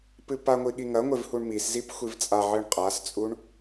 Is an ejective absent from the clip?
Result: no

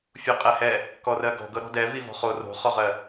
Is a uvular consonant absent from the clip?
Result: no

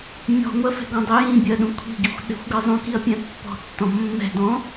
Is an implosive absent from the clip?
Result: no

